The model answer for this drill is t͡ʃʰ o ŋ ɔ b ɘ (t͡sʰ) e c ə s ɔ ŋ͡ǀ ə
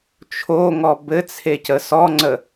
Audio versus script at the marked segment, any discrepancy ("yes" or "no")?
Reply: no